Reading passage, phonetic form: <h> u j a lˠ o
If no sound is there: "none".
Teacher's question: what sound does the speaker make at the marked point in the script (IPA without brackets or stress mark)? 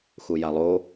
x